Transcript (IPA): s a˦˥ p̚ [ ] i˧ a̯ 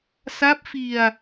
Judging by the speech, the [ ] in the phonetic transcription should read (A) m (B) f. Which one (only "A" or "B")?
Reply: B